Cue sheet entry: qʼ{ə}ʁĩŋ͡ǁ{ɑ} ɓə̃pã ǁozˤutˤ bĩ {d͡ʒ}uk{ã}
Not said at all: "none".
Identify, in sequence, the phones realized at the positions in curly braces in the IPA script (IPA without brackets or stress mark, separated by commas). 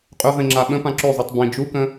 ɵ, a, d͡ʒ, ə̃